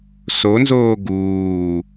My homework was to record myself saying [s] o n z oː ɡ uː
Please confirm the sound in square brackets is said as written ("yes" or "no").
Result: yes